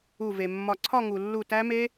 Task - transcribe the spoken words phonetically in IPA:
u˧˩ v e˩ mː ɒ˧˩ ǀʰ ɒ˥˧ ŋ u˩ lː u˧˩ t æ˦˥ m e˦˥

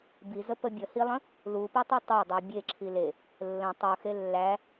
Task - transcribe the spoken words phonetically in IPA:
b i z ə p ə bʲ ə h i lˠ ə̃ | l u p i tˤ u tˤ æ dˤ u bʲ e ǁʰ i l e | lː ə̃ tˤ u x e lː æ

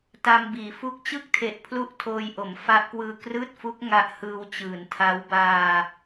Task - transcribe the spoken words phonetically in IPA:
t a˧ m b iː˩˦ f u˦˥ k̚ t͡ɕ ɯ˥˩ k̚ tʰ e˨˩ ʔ pʰ l u˥˩ ʔ tʰ oː˧ j ʔ o˩˦ m f a˦˥ ʔ k w ɯː˧ k r ɯː˥˩ t̚ f u˦˥ k̚ ŋ a˦˥ ʔ h ɯː˧ w t͡ɕ ɯː˩˦ n tʰ a˦˥ w b aː˧

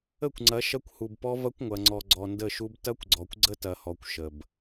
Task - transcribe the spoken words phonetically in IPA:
ə˦˨ kʷ ŋ͡ǀ ɐ˨˦ ʃ ɐ˦ kʷ h u˨ b p ɔ˦ v ɐ˦ kʷ ŋʷ ɐ˨ ŋ͡ǀ ɔ˨ ɡ͡ǀ ɔ˨ n d ə˦˨ ʃ u˦ b t ɐ˦ kʷ ɡ͡ǀ ɔ˨ kʷ ɡ͡ǀ ə˦ t ɐ˨ h ɔ˨ kʷ ʃ ə˨ b

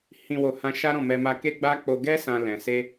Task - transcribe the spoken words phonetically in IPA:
h ĩ˨ w o˨ h ã˧ ʃ a˦ ɾ ɔ̃˦˨ m ɛ˧ m a˧ k e˦ ɡ͡b a˦ k͡p o˧ ɡ ɛ˦ s ã˧ l ɛ̃˨ s e˧

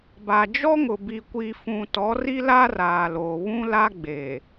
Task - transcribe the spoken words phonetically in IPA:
b a˨ d͡ʒ ɔ˦ ŋ ʊ˨ b i˨ kʷ i˨ f ũ˨ t ɔ˨˦ r i˦ l a˦ r aː˨ l o˨ β ũ˦ l a˦ ɡ͡b e˨

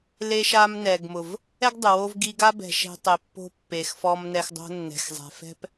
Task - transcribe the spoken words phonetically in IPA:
l e˧ ʃ a˧ m n ɛ˨ ɡ m ʊ˨ v | ɛ˦ ɡ dˤ ʊ˨ w o˦ v ɡ i˧ ɡ a˦ b ɛ̤˧ ʃ ɛ̤˦ tˤ e˨ pː o̤˧ pː e˨ x f ɔ˧ m n ɛ˧ x dˤ o̤˦ nː ɛ̤˨ x zˤ ɛ̤˨ f ɛ̤˦ p

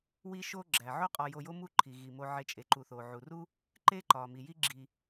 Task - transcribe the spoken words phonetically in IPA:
w i˦ ʃ o˦ ɡ͡ǁ æ˩ ʕ o˥ qʼ ɒ˨ j o˨ j o˦ m u˦ ǃʰ i˩ ɣ i˩ m o˨ ʕ e˨ t͡ʃʼ e˩ ǃ u˩ θ o˩ ʕ u˩ r u˥ | ǃ e˥ ǃ ɒ˩ m i˩ j i˥ ɡ͡ǁ i˨

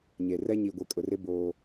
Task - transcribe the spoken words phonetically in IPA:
ɲ e˨ r ɛ˦ ɲ i˨ ɡʷ e˨ kʼ ʊ˨ r ɪ˦ b oː˦

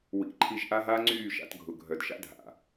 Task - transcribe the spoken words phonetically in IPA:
w ḭ˨˦ ǃʰ i˧ ʒ ʔ a˦ ɦ aː˦ ŋ͡ǀ yː˦˨ ʃ a̰˧ t ɡʱ ʊ˨ ɡʱ œ˨ d ʃ a̰˦ dʱ a̰˨

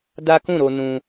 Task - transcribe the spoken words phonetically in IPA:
d a˦ k ũ˦˨ ɾ o˧ n ũ˦

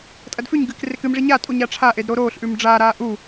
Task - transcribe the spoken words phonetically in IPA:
tʼ ɐ d f ʉ ɲ ɡ ɨː k r e k ɨ m ʐ i ɲ a tʼ u ɲ a ʈ͡ʂʰ a ʔ e d ɾ o ɾ oː ɬ ʔ ʉ m ɖ͡ʐ aː ɾ aː ʔ u

